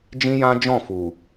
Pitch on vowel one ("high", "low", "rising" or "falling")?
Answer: high